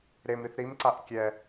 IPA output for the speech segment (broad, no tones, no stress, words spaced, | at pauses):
ɾemɾiθ ɾimǀaʔ kʲɛ